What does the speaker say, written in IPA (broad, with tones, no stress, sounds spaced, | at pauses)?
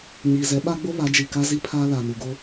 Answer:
ɲ iː˨ z ɛ˨˦ ɓ a˦ ɡ͡b o˦ β a˨˦ d͡ʒ i˨ k a˦ z i˦ pʰ aː˦ l a˨ n u˨ ɡ o˦